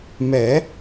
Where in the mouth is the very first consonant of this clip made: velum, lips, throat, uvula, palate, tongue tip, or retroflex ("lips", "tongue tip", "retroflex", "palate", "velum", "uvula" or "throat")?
lips